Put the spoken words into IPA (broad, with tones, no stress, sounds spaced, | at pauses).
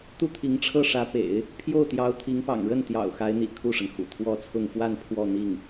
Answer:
t̪ u˥˩ t̪ʰ i˧˥ ŋ ʈ͡ʂʰ ɤ˥˩ ʂ ä˧˥ p ḛ˨˩˦ ɪ̯ | pʰ j o˥˩ ʊ̯ t̪ j ɑ˧˥ ʊ̯ t̪ʰ i˧˥ ŋ p ɑ̰˨˩ ŋ ɻ ə˥˩ n t̪ j ɑ̰˨˩ ʊ̯ x a˧˥ ɪ̯ n̪ ḭ˨˩ kʰ u˥˩ ʂ ə˩ n x ṵ˨˩ t̪ʰ w ɔ˥ t͡sʰ ʊ˥˧ ŋ f w a˥˧ n pʰ w ɔ˥˧ n̪ i˥˩ ŋ